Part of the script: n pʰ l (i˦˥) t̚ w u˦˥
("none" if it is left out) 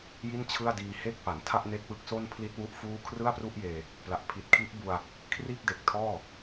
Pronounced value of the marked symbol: i˦˥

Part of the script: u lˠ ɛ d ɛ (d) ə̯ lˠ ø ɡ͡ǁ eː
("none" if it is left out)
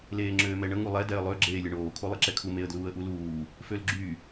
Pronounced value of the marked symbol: none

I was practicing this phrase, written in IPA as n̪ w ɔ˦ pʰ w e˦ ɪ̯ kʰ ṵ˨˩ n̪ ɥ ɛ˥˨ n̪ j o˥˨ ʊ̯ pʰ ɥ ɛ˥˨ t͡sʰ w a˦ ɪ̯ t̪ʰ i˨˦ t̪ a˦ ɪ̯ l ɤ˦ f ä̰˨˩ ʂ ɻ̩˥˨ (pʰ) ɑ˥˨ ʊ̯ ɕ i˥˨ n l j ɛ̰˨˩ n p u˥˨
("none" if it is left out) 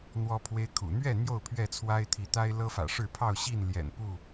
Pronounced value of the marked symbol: pʰ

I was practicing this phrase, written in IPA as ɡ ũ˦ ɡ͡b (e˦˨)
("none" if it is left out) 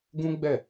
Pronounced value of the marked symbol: ɛ˦˨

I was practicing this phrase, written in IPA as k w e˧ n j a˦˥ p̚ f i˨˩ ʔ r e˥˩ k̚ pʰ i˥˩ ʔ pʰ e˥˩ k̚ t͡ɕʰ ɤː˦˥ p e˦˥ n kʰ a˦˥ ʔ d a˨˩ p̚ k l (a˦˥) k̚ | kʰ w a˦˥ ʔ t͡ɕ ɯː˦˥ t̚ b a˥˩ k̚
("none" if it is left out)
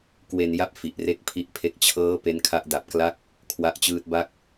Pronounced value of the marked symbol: a˦˥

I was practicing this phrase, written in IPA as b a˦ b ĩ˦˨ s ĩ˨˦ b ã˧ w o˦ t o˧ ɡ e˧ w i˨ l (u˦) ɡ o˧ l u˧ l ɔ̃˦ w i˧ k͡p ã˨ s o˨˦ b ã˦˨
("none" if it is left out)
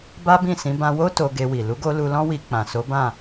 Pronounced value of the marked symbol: u˨˦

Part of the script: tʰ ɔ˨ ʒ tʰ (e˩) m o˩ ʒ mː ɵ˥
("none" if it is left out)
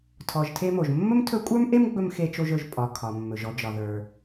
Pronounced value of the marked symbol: e˦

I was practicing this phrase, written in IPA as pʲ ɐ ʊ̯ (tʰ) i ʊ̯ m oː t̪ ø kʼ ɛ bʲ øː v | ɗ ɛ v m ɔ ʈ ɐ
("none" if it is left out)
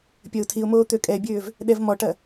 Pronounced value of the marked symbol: tʰ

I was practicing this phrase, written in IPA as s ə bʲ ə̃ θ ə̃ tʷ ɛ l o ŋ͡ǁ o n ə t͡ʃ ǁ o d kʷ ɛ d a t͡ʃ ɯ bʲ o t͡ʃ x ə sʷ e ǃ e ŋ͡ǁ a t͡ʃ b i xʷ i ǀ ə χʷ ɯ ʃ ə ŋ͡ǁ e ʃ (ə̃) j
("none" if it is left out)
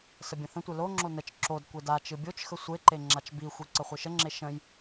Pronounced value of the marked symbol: ə̃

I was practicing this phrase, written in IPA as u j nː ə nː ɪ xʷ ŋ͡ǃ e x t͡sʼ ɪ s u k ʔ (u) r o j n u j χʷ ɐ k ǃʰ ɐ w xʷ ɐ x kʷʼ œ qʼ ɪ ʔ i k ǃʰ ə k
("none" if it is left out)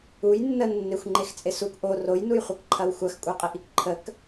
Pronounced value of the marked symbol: o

